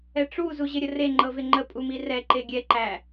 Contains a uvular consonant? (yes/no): no